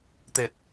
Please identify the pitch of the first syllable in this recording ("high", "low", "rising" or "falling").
low